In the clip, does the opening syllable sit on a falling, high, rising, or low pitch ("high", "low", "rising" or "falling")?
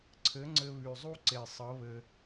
rising